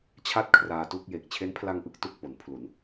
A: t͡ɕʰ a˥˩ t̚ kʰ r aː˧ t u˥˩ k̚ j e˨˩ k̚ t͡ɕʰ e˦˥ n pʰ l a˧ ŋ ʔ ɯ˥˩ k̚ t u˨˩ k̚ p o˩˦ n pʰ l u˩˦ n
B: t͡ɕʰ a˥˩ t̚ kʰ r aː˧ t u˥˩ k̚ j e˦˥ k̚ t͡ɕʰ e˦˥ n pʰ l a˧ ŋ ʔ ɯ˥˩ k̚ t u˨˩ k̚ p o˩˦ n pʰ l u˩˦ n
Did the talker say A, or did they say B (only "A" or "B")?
A